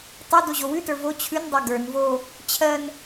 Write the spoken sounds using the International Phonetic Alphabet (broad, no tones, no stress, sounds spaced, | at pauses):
tˤ o d o ʑ o w ʉ t ə˞ v o t͡ɕʰ ʉ n dˤ ɜ ɡ ə˞ n v o | t͡ɕʰ ɜ n